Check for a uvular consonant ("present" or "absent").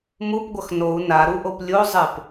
absent